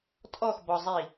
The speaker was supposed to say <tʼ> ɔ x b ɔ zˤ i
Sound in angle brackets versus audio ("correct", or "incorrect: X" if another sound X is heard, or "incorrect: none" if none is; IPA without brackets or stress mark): correct